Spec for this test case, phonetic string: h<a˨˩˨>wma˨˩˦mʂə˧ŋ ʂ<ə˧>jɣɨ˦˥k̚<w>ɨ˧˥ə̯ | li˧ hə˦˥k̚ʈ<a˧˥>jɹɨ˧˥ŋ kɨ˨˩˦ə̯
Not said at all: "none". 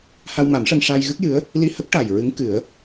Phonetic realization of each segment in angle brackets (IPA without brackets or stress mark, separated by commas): a˧, a˧, j, a˨˩